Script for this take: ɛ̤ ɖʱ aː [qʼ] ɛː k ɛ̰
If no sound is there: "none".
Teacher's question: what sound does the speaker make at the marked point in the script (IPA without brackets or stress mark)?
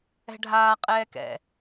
qʼ